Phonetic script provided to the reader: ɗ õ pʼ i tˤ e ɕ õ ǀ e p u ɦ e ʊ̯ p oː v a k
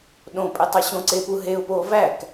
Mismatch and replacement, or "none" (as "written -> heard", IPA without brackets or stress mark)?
a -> æ